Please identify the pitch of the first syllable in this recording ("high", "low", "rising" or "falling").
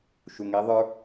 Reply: low